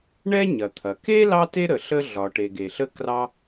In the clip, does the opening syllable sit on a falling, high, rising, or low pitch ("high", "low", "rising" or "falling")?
high